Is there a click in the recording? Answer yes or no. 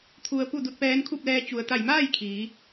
no